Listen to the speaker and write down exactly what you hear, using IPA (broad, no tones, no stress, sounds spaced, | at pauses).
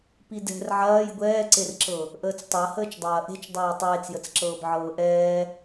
p i d ɛ̤ r ʕ ɐː j ɡʷ ɛː ǀ e r ǁ ɤ | ʔ əː t͡s tˤ ɤ h əː t͡ʃ dˤ ɐː ʔ e̤ t͡ʃ dˤ ɛː tˤ eː t͡s j ə t͡s ǁ ɤː b ʕ ɤː ʔ ɛː